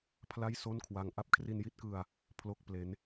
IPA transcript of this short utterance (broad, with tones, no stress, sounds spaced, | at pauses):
pʰ l a˥˩ j s o˥˩ n kʰ w a˧ ŋ ʔ a˥˩ p̚ kʰ r i˧ n j i˥˩ t̚ k ɯ˧ a̯ | pʰ l o˥˩ k̚ p l e˦˥ n